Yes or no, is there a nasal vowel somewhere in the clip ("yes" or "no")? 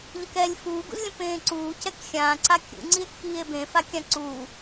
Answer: yes